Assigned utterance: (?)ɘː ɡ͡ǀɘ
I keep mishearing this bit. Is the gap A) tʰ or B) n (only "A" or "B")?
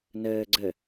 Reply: B